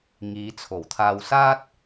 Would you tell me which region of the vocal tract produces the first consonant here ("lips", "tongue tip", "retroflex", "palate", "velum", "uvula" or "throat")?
velum